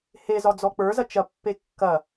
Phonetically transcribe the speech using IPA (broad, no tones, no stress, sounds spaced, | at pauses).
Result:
h e z ɒ d͡z ɔ k͡p ə˞ z ɐ t͡ʃ ɐ pː e kː ɐ